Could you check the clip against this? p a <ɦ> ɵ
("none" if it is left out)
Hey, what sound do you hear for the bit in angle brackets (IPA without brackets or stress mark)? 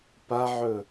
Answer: ʕ